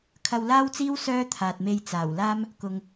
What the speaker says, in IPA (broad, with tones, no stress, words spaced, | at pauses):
kʰɐ˧wlaː˥wt͡siː˥w sœː˥t̪ʰaː˨t̚me˧j t͡saː˨˩wlaː˥m | kʊ˨ŋ